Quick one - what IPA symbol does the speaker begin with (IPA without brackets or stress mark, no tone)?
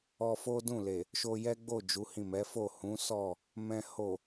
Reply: ɔ